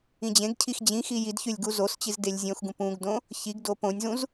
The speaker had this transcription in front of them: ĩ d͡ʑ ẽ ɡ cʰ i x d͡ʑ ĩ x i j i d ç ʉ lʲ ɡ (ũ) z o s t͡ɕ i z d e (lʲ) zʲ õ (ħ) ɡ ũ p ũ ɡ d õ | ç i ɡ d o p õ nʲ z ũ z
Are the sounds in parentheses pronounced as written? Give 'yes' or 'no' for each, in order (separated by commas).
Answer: no, yes, no